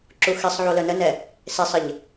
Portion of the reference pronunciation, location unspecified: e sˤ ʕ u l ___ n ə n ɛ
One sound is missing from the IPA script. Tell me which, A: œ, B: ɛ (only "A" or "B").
A